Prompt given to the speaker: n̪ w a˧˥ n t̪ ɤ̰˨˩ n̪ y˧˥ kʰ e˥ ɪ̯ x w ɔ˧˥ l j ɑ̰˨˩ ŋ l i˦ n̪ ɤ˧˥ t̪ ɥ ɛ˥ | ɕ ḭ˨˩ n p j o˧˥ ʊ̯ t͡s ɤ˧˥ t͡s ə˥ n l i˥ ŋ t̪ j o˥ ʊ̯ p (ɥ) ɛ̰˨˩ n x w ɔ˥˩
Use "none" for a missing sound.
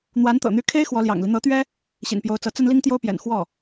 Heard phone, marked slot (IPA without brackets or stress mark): j